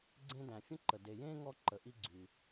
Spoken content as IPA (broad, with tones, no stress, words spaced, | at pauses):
ɡ͡ǀẽ˦dæ̃˨fʲə̃˥ǃə˨ de˨jẽ˥ ŋɔ˦ǃə˨ʔi˦ ɡ͡ǀy˨